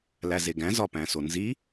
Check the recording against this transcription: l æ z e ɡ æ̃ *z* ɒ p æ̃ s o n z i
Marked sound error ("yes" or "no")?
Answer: no